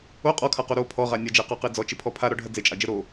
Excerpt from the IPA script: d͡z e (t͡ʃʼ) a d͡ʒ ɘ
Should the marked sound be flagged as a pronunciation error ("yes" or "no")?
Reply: no